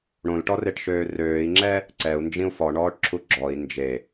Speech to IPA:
ɽ õ l ʈ ɔ r e ʈ ʃ øː r øː i̯ ŋ͡ǁ ɛ | ǀ ɛ u̯ n d͡ʒ ĩ u̯ f ɔ ɳ ɔː ʈ ǁʰ u ɡ͡ǁ ɔ i̯ n d͡ʒ e

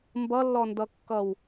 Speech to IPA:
m b ʌ lː ɔ n d ʌ kː ʌ w

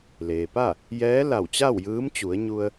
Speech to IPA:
l eː˩ p a˥˨ | j ɛː˧˥ l a˧˩ w t͡ɕ a˥˨ w j ɯː˧˥ m t͡ɕ u˩˧ ə̯ ɲ u˧ ə̯

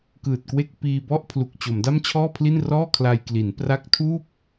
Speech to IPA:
k ɯː˨˩ t̚ k w e˥˩ k̚ p iː˧ b ɔ˥˩ ʔ pʰ l u˨˩ k̚ t͡ɕ o˩˦ m d a˥˩ m t͡ɕʰ ɔː˥˩ pʰ l i˥˩ n r ɔː˥˩ kʰ l a˧ j k l i˩˦ n p r a˦˥ k̚ tʰ uː˥˩ p̚

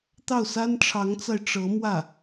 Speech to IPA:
t̪ ɑ˥˩ ʊ̯ s a˥ n ʈ͡ʂʰ ɑ˧˥ ŋ t͡s a˧ ɪ̯ ʈ͡ʂ ɤ˧˥ m w ä˥˩

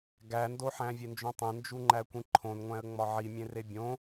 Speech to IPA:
ɡ æ n d o ħ æ̃ vʲ e n d͡ʒ õ tˤ ẽ n d͡ʒ u ŋ͡ǃ æ kʷ ĩ ǃʰ õ n ŋʷ æ̃ ə̯ ŋ͡m ɒ ʕ i mʲ ẽ r e bʲ õ

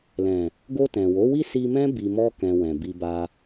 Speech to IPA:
l ɛ̃˨ | ɡ o˧ t ɛ̃˨ w o˨˦ w i˦ s i˧ m ɛ̃˦ b i˧ m ɔ˦ k ɛ̃˧ w ɛ̃˨ b i˧ b a˧

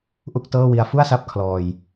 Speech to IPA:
ʔ u˥˩ k̚ t ɤː˥˩ w i˧ a̯ f u˥˩ a̯ s a˦˥ p̚ kʰ l ɔː˧ j

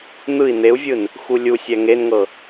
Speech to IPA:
n̪ ɯ i̯ n̪ e u̯ vʲ ɯ n | x u lʲ u sʲ ɛ ŋ e n ŋ ɤ

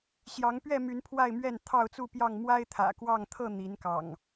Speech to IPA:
ɕ j ɑ˨˦ ŋ p ɥ ɛ˥˨ m y˨˦ n pʰ w a˥˨ ɪ̯ m ɥ ɛ˥˨ n t̪ʰ ɑ˥˨ ʊ̯ t͡s u˥˨ p j ɑ˥˨ ŋ m w a˦ ɪ̯ t̪ʰ ä̰˨˩ k w ɑ˥˨ ŋ t̪ʰ ɤ˥˨ n̪ i˨˦ n k ɑ̰˨˩ ŋ

